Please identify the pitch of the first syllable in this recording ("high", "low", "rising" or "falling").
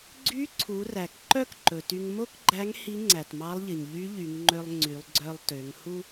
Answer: rising